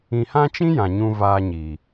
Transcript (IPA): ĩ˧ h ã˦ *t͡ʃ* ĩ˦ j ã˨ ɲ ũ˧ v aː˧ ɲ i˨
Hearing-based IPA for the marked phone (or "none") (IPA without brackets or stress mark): t͡ʃ